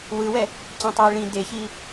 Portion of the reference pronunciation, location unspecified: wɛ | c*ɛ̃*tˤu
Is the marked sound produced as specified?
no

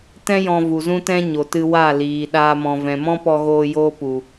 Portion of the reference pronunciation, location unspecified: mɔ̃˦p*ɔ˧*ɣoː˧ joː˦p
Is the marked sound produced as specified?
yes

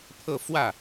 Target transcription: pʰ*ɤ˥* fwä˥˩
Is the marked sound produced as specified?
no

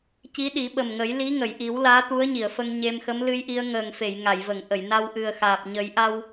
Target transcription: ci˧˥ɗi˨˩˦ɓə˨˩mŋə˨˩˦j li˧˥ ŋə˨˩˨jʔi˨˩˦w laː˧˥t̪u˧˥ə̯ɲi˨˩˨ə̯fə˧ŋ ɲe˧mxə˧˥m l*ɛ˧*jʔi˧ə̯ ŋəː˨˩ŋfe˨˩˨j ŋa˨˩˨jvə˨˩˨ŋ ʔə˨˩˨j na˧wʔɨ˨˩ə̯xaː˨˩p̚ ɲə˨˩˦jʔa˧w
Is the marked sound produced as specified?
no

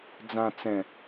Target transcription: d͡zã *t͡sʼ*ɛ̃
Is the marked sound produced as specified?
no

